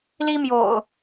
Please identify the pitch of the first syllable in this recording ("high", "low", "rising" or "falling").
high